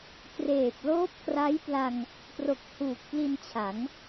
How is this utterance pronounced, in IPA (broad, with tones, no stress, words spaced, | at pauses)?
kreː˨˩p̚ loː˦˥p̚kra˦˥jpla˧ŋ | pro˨˩k̚huː˨˩k̚ pli˧nt͡ɕʰa˩˦ŋ